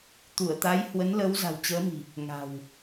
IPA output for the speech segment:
t̪u˧˩ə̯t̪a˨˦jhwə˨˦nlə˨˦w za̤˨˩wt͡ɕəː˨˦mi̤˨˩ | ŋa̤˨˩w

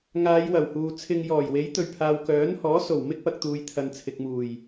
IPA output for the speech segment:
ŋaː˨˧jwɐ˨˩w huː˨t͡sʰɪ˧ŋjɔː˨˩j we˨˥jt̪ɵ˨ɥpʰaː˨w kœː˨˥nhɔː˨˥ so˨˩w mɪ˥k̚pɐ˨k̚t̪uː˨˧jt̪ʰɐ˨n t͡sʰɪ˨k̚muː˨˩j

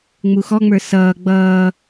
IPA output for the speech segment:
ŋ͡muxɔŋ͡mə˞ sʌː ɡ͡bʌː

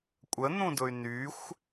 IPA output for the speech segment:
kʷʼən̪ũdʊy̯ nyxʷ

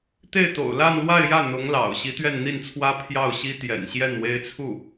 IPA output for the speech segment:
t̪e˥˩ɪ̯t̪o̰˨˩ʊ̯ la˥˧nlwa˥˧ɪ̯jä˥˩ n̪ʊ˧˥ŋlɑ̰˨˩ʊ̯ ɕi˧˥t̪ɥɛ˥˧nn̪i˥˩nt͡sʰwä˥ pʰjɑ˥˩ʊ̯ɕi˥t̪jɛ̰˨˩nɕjɛ˥˩n we˥ɪ̯t͡sʰu˥˩

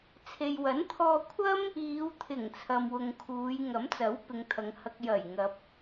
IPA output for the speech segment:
t͡sʰe˨jwɐ˨˥nt̪ʰɔː˧kʷʰɐ˥m | iː˨˧wt̪ʰɪ˨˩ŋ t͡sʰɐ˨mwʊ˨ŋkʰuː˨˧j ŋɐ˨˥mt͡sɐ˨˥w pɪ˨˧ŋt̪ʰɐ˨˧ŋ hɐ˧k̚ jɐ˨˩jŋɐ˨p̚

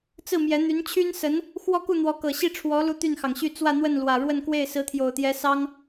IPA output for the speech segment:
t͡sɹ̩˥˩mjɛ˧˥ n̪y˧˥nt͡ɕʰy˥nsə˧˥n | xwɔ˥˧ku˥˩n̪wɔ˧˥ kɤ˨˩ɕi˥˩ʈ͡ʂʰwɔ˧˥ lu˥t̪y˥˩nxɑ˩ŋɕy˥˧ t͡swä˥˧ n̪wə˥˩nlwä˨˩ɻwə˥˧nkwe˥˩ɪ̯ sɹ̩˧˥t̪ʰjo˨˩ʊ̯t̪jɛ˧˥sɑ˥ŋ

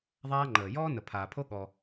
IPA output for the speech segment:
ðˤaː˦ŋ͡ǃəː˨ jɔː˦nə˨pʰaː˨pʰo˦ ɠɔ˦

